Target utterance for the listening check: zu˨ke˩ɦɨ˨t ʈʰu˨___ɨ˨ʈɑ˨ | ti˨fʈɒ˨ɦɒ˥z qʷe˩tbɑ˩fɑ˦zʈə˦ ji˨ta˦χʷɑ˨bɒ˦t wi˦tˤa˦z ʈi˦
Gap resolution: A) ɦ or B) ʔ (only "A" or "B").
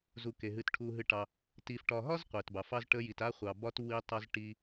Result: A